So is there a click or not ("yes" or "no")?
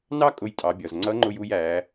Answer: yes